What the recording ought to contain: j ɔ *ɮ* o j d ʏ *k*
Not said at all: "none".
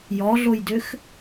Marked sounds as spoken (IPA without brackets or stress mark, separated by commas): ɮ, x